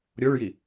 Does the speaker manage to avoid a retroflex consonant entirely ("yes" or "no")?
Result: no